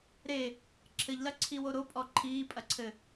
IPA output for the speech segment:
ɾ e | ǁʰ ɘ ʎ l ɐ ǀʰ i w o ɾ o pʼ ɔ ǃʰ iː pʼ ɐ ǀʰ ɘ

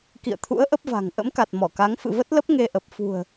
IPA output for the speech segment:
k ḭ˧˨ ə̯ t̪ʰ ṵ˧˥ ə̯ ʔ ə˦˥ p̚ v a̤˨˩ ŋ ʔ ə̰˧˥ m k a˨˩ t̚ m ɔ˧˩ k a˨˦ ŋ f ɨ̰˧˨ v ə˦˥ t̚ l ə˦˥ p̚ ŋ e˧ ʔ ə˨˩ p̚ f ṳ˨˩ ə̯

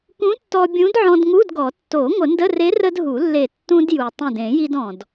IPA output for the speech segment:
k ũ˧˥ tː ɔ˧ bʲ ũ˧˥ d ʕ ɔ̃˧ d ŋ u˧˥˧ d ɡ ɔ˨˩˦ tː o˨˩˦ ŋʷ ə˨˩˦ n d ə˧˥˧ r e˧˥ r ə˧ d ɦ u˨˩˦ lː e˧˩ tː ũ˧ d j u˩ tˤ ũ˧˩ d ẽ˨˩˦ j i˧ d ɔ̃˩ d

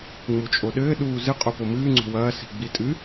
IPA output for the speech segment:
ŋ͡m u t͡ʃʼ o ɗ ɘː ɗ uː z ɨ qʼ o p o m ɨː ŋ͡ǀ o̤ w ɐː s i̤ ɡ͡b i tʼ ɨ

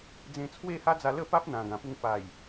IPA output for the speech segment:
d͡z ẽ˧ t͡sʰ w e˥˧ h a˦ d͡z a˧ l ə˥˧ p a˦ p̚ n̪ ã˨˩ ɡ ã˨˩ p u˧ ŋ p a˨˩ j

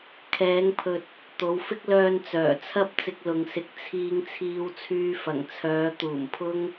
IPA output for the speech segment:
kʰ ɛː˨˧ ŋ pʰ ɵ˨ t̚ | t̪ o˨˧ w f ɪ˥ k̚ l œː˧ n t͡s œː˨˩ t͡sʰ ɐ˥ p̚ t͡s ɪ˧ k̚ l ʊ˨ ŋ s ɪ˨˥ k̚ t͡sʰ iː˧ ŋ t͡sʰ iː˧ w t͡sʰ yː˧ f ɐ˨˩ ŋ t͡sʰ œː˨˧ t̪ uː˨˩ m pʰ ʊ˥ ŋ

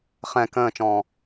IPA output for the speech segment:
χ ɛ̃ k ə̃ː t͡ʃ ɔ̃ː

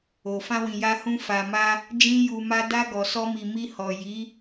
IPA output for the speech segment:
o˨ f ã˧ w ĩ˨ j a˧ h ũ˧ f a˨ m a˧ | d͡ʒ ĩ˦ j u˧ m a˦ d a˧ ɡ ɔ˨ s ɔ˧ m i˨ m i˧ h ɔ˨ j i˨˦

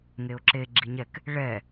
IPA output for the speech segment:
ŋ e ʊ̯ ǁ e ɡ͡ǁ i ɲ ɛ k | ɭ ɛ

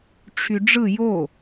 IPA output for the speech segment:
ʈ͡ʂʰ y ɖ͡ʐ ɯ j o

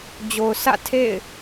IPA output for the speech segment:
d͡ʑ o˨ ʊ̯ sʰ ä̰˦˨ tʰ ḛ˦˨ ɪ̯

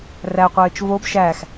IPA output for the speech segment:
r æ qʷ ɘː t͡ʃ v o b ʃ æ x

